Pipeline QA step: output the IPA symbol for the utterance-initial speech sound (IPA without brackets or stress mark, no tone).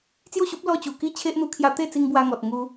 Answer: t͡s